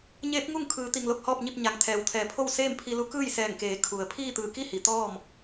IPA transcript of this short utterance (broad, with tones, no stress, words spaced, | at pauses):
ɲeː˧˥p̚ŋu˥˨ŋ kʰɯː˩˧ t̪i˧˩ŋlo˥˨k̚hɔː˥˨p̚ɲi˥˨p̚ ɲa˩ŋt̪ʰɛː˩wt̪ʰɛː˩˧pʰo˥˨w seː˥˨mpʰi˧lu˧˥ kɯː˥˨jsɛː˧˩ŋkeː˩˧ kʰu˩ə̯ pʰiː˥˨t̪ɯː˧˩ki˥˨hi˩ t̪ɔː˥˨m